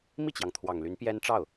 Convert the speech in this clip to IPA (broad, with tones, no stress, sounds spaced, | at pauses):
m i˥˩ t͡ɕ j ɑ˩ ŋ t̪ʰ w ɑ˨˩ ŋ l y˧˥ n p j ɛ˥ n ʈ͡ʂ ɑ˥˩ ʊ̯